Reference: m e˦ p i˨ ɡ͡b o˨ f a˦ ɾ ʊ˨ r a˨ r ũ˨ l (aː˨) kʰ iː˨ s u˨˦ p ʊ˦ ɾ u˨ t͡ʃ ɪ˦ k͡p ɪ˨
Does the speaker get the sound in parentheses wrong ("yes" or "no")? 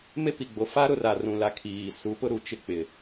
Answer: yes